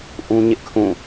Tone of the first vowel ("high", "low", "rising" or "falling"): high